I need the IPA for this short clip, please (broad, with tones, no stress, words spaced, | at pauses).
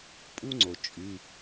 pʼu˥ŋ͡ǀo˩ t͡ʃʼy˩˧˩